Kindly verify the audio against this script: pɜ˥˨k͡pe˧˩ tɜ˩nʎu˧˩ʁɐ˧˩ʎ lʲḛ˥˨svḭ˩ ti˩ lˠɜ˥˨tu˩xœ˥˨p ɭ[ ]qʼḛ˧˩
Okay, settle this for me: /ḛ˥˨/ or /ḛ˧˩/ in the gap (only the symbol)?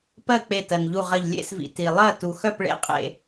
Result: ḛ˥˨